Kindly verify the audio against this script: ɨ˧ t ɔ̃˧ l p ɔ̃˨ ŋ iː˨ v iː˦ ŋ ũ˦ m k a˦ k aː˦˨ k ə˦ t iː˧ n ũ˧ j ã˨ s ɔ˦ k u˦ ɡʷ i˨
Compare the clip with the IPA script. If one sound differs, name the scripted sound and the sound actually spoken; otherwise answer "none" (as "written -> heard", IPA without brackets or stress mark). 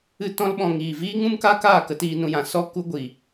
p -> ɓ